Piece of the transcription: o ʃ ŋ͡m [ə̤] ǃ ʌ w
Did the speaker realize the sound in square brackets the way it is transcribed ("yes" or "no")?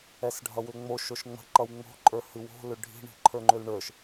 yes